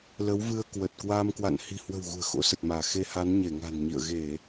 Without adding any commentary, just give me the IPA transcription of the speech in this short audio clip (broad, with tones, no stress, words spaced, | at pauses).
lə˨˦wvɨ˧ə̯ kwə˨˩t̚kwaː˧mkwa̰˧˨n hi̤˨˩hwə̤˨˩w ɣṳ˨˩ə̯xo̰˧˥sə˨˩t̚maː˧˩ xe˧ha˨˦n ɲe˧˩ŋa̤˨˩nɲḭ˧˨ə̯ ɣe˧˩˨